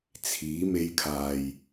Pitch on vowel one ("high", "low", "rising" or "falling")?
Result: rising